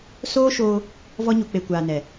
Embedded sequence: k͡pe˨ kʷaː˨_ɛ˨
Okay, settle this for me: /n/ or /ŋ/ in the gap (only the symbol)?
n